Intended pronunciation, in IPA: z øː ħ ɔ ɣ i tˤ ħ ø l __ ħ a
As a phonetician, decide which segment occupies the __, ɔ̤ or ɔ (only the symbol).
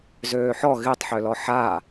ɔ